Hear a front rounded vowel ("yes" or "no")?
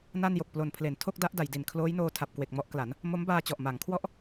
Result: no